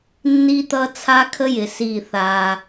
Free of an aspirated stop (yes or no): no